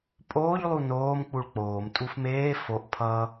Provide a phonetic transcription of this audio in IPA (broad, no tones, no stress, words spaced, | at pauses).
pʼoːʎ lˠunoːm k͡puɭk͡poːm tʼufmeː foʔ pʰʌ